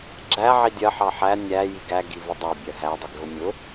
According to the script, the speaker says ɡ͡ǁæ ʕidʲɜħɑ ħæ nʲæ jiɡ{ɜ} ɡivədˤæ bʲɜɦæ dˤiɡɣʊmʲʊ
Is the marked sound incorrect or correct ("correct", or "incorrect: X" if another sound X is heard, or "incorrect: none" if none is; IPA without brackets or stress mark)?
incorrect: æ